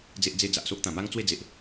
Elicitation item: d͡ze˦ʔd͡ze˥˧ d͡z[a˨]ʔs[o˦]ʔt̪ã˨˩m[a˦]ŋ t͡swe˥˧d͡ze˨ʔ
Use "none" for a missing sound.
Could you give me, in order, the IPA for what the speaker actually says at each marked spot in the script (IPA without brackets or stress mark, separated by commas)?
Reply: a˨, o˦, a˦